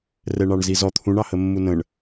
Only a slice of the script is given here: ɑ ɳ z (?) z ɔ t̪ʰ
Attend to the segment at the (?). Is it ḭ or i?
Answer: i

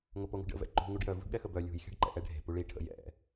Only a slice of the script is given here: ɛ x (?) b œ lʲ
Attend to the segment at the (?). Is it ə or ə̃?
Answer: ə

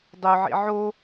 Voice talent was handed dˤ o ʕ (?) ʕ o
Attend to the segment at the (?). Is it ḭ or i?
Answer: ḭ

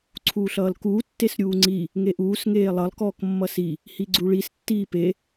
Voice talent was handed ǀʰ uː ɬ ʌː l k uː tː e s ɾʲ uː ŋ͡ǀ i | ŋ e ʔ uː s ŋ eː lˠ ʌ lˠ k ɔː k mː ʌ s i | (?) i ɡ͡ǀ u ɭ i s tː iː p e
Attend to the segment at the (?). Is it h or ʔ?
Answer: h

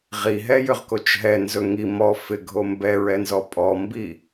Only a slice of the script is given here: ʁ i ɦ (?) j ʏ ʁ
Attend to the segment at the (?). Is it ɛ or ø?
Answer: ɛ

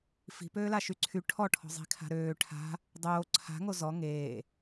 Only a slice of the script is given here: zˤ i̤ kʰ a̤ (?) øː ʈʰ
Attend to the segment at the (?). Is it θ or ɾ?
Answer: ɾ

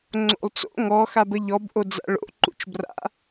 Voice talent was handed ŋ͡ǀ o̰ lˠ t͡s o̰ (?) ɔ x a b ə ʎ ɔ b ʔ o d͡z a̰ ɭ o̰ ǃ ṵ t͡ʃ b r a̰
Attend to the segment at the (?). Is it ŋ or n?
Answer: ŋ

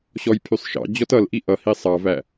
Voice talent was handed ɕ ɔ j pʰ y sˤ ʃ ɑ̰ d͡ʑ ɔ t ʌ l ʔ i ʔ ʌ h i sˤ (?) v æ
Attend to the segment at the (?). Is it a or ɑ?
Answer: ɑ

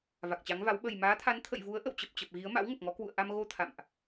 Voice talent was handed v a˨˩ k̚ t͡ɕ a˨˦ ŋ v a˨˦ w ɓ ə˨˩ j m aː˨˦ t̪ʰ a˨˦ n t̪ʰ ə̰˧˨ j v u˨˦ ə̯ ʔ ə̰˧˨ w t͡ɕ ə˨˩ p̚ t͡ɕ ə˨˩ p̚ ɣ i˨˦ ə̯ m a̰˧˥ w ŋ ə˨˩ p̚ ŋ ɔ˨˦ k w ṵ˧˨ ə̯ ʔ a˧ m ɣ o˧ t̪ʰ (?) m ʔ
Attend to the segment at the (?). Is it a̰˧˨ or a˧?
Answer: a̰˧˨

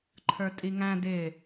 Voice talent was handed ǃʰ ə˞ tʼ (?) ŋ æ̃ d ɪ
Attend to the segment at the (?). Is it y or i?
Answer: i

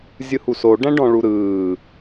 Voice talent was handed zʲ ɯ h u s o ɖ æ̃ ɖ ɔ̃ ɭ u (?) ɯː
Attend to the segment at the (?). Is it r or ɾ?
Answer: ɾ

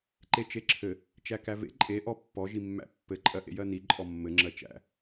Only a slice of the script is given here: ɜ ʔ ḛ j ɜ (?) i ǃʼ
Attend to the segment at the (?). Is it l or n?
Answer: n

